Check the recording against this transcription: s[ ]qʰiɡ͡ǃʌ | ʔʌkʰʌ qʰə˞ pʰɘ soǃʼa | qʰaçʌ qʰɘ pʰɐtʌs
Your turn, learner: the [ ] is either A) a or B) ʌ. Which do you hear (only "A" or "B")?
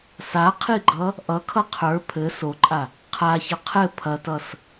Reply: A